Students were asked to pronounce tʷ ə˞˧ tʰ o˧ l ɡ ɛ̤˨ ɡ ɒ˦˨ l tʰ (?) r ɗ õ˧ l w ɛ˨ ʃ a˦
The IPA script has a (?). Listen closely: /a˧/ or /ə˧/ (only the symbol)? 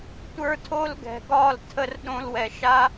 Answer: ə˧